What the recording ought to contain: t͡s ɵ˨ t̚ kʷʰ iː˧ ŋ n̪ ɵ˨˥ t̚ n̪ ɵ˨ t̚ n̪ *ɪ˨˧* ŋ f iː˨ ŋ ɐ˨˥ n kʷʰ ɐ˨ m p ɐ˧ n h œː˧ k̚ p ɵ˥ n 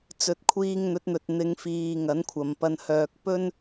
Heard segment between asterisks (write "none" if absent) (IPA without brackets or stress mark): ɪ˨˧